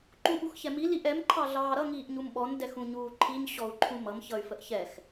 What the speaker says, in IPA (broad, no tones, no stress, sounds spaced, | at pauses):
ǃ ũ ɓ u x ç ɛ m i l i ʔ ɛ m ǃʰ ɑ ɮ ɑː ɾ ʌ ŋ iː ʔ ɲ u m ɓ ɔ n d ɛ x ũ ɲ uː ǃʰ i ɲ ɕ ɔ u̯ ǃʰ ũ m ʌ m ç ʌ y̯ f ə ʔ ç ɛ x